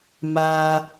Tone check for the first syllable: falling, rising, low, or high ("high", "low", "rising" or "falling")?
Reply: low